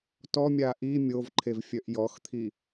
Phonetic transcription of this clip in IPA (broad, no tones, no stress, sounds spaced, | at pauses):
t ɔ mʲ a ʔ i mʲ o v ǃʰ e v fʲ œ ʔ j ɔ x t̪ʰ i